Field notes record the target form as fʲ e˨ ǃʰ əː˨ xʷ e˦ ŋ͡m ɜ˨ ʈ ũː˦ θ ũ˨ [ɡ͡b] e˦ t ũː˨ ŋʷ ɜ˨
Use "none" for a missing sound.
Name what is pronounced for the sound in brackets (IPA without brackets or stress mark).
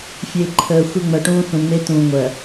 ŋ͡m